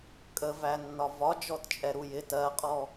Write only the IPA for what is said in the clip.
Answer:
kʼ ə v æ nː ɒ v ɒ d͡ʒ ɔ t t͡ʃʼ ɛ ɾ u j ɪ t ɜ qʼ ɔ

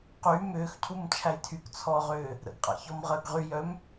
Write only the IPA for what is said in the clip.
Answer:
q y m ʏː x cʰ u m t͡ʃʰ æ j tʰ y k t͡sʰ ɔː ʁ ʏː | ɾ ə̰ ɡ qʼ a̰ ç ɔ m ʁ əː ɡ ʁ y j œ m

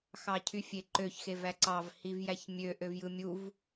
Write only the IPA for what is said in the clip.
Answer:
x ɑ cʰ y fʲ e ǃ ø ç x e v æ ǀ ɑ v h i v j æ ç mʲ ø ʔ ø v j ɯ mʲ u v

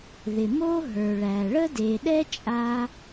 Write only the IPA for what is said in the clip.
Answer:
ð ɪ˩ m o˥ ɦ ə˞˩ ɭ æ˩ ɭ ə˥ d e˩ ɗ ɛ˥ t͡ʃʼ a˥

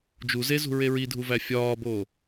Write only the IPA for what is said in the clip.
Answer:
d͡ʒ u z e z ṳ ɹ e ɹ i dʱ u v æ fʲ ɒː b oː

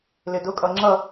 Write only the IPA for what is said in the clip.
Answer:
l ɪ d ʊ kʼ ʌ ŋ͡ǁ ʌ

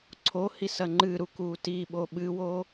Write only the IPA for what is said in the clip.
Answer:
ǀʰ o h i s ɐ ŋ͡ǃ ɨ ɾ u k u t i ɓ o ɓ ɨ w o

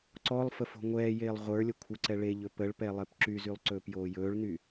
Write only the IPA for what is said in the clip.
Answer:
ǀ ɔ lˠ f ə f o̤ ŋʷ ɛː j eː lˠ ʁʷ ə˞ lʲ ə kʷʰ ə ǀ ɛ ɭ e ʎ ɵ p ə ɭ p ɛ lˠ e p ǁ y z y lˠ ǀ ɵː p j oː j ɵː ɭ n y

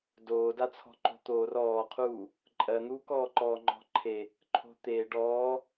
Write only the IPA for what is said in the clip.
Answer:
d oː d a t͡sʰ ɔ̤ ǃ o̤ t̪ oː r ɔː qʰ uː | ǃʼ ɜ n̪ uː k ɔː ǃ ɔː ŋ͡ǃ ɔ̤ ǃʰ e | ǃʰ o̤ t̪ eː ɖ ɔː

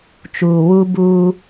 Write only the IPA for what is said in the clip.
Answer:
t͡ʃ uː˨ w u˦ b u˦

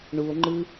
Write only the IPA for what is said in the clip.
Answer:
ɳ u o̯ ŋ͡ǃ ɯ

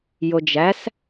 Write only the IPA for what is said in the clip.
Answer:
j o d͡ʒ æ s

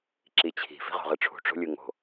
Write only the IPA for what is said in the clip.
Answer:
ǁ i t͡ɕʰ i̤ f i̤ ʁ o̤ ʁ ɯ ʈ͡ʂʰ ṳ ʈ͡ʂ o̤ lʲ ɯ ŋ o̤

